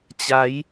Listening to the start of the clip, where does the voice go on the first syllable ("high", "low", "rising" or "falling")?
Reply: rising